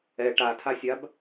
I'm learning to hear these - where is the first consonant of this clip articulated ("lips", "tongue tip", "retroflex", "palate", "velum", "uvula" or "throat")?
retroflex